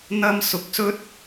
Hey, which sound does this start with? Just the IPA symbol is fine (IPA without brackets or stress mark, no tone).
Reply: n̪